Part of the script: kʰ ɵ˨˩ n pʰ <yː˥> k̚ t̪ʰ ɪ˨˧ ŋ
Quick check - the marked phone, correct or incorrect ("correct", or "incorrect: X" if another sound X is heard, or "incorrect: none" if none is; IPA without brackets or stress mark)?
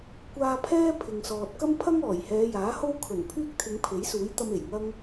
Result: correct